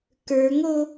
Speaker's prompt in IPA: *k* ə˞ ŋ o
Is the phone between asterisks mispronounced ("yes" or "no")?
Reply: no